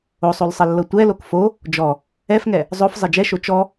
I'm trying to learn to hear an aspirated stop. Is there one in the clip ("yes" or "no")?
no